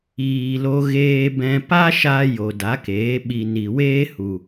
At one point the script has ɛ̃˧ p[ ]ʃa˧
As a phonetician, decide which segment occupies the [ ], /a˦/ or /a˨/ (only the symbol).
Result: a˦